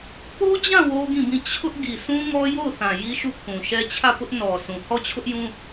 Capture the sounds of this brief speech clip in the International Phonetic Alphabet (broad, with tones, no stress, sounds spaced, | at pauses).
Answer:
p o˦ d͡ʑ ã˦˨ w o˦ ɡ ĩ˦˨ b ĩ˦˨ t͡ɕʰ ʊ˦ ʔ ɡ i˨ s ũ˦ ŋ ɔ˦ j o˦˨ ʊ̯ θ ã˨ j i˦ ʃ u˦˨ kʰ ũ˨ ʃ ɛ˦ t͡ɕʰ ä˦˨ p ʊ˦ ʔ n ɔ˨ sʰ ũ˨ h ɔ˦˨ t͡ɕʰ ʊ˦ ʔ j ũ˦